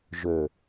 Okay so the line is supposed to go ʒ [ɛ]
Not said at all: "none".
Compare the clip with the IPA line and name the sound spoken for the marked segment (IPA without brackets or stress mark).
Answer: ø